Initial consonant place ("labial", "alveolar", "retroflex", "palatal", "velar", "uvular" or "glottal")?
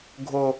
velar